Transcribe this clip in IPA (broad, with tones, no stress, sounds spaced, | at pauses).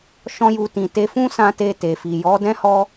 ʃ ɔ̃˦ j u˧ t ĩ˨ t e˨˦ f ũ˦ s ã˦ t e˦˨ t e˨ f i˨ j ɔ˨˦ d ɛ̃˦ h ɔ˧